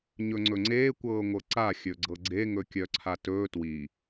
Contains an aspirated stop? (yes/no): yes